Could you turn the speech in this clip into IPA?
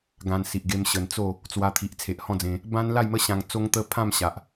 ɡ ã˧ n s i˨ ʔ ɡ e˧ m ɕ ə˨˩ n t͡s o˥˧ | t͡s w a˧ t̪ʰ i˨ ʔ t͡sʰ e˨ ʔ h ɔ̃˥˧ d͡z ẽ˧ | b ã˦ n l a˥˧ j m ə˦ ɕ ã˧ ŋ t͡s o˦ ŋ t̪ ə˦ pʰ ã˥˧ m ɕ a˨ ʔ

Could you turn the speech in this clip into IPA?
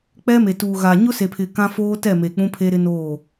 k͡p ɛ˦ m e˨ t uː˨ ɣ a˨ ɲ ʊ˦ s e˨ pʰ ɪ˨ k ã˦ f oː˦ t ɛ˦˨ m e˨ k͡p ũ˦ pʰ e˦ ɾ ɪ˦ n oː˦˨

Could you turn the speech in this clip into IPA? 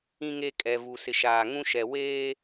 ĩ˨ ŋ e˨ kʼ ɛ˨ v u˨ s ɪ˨ ʃ aː˨ ŋ ũ˦ ʃ ɛ˨ w eː˦

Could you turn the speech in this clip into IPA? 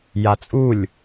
j a t͡sʼ u lʲ

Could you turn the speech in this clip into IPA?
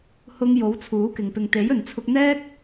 h ʊ˧ ŋ j o˨˥ w t͡sʰ uː˨˥ k ɪ˨ ŋ p ɪ˨ ŋ t̪ e˨˥ j ɵ˨ n t͡sʰ ʊ˧ k̚ n̪ ɛː˥ k̚

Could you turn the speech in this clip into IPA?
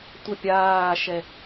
tʷ ə pʲ aː ʃ ɛ

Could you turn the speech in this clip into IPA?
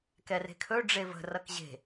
k ɛ r e̤ kʰ ɵ ɖ͡ʐ e v ə̤ r ʌ k ʑ e̤

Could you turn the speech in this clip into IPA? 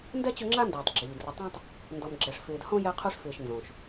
n d ɛ˥ t͡ɕ ʊ˦ ŋ͡ǁ a˥ n d ɪː˩ tˤ ɡ͡ǁ iː˩ d r ʊ˨ tˤ ũ˦ tˤ | n d ɔ˨ m ɡ͡ǁ ɛ˨ ʂ f ɪː˨ d h õ˥ j ɛ˦ qʰ u˦ ʂ f ɪː˨ ʃ n z õ˩ ʃ

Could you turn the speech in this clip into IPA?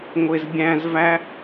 ŋʷ e z bʲ æ̃ z v æ

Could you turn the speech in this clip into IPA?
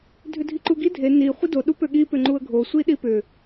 dʱ ʏ dʱ i ǃ u ɡ i dʱ e n i χʷ i d o ɗ u p ø ɠ i p ʏ ŋ͡ǃ u ə̯ ɡʱ o sʷ i ɗ i p ʏ

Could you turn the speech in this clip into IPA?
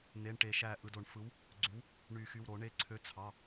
n̪ e˩˧˩ ɳ ʈ e˨˩˦ ʃ æ˧˩ ʔ ɯ˩˧˩ d o˨˩˦ ɳ f ɯ˨˥ w | ɡ͡ǀ y˨˥ w | ɳ y˨˩˦ x y˩˧˩ w ɾ o˨˩˦ ɳ e˨˥ ǀʰ ø˨˥ t͡sʰ ɑ˩˧˩

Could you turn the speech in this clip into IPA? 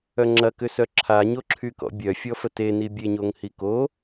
œ ŋ͡ǁ ɐ k ʏ s œ ǁʰ a ɲ o ǁʰ y k ɔ̰ bʲ œ fʲ ɔ f ə t e n i bʲ e ɲ o ŋ h i k o

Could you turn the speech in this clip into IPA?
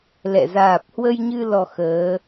l ɛ̰˧˨ z aː˨˩ p̚ h w ə˧ j ɲ ɨ˧ l ɔ˧ x əː˨˦

